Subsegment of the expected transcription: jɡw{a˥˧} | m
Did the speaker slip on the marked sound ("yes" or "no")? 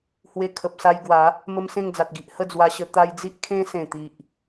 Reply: yes